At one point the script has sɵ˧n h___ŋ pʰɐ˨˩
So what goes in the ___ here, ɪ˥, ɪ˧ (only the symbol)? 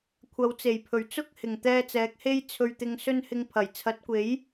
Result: ɪ˧